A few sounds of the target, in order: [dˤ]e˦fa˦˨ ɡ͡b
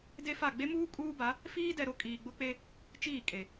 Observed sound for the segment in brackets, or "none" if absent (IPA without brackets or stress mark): d